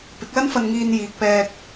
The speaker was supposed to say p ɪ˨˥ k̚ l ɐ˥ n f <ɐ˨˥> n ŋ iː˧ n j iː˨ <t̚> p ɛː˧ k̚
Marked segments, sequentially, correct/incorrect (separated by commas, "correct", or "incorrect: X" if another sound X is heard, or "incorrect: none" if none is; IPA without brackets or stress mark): incorrect: ɐ˧, incorrect: k̚